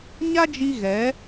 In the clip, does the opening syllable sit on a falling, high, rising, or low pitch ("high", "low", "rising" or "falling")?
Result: high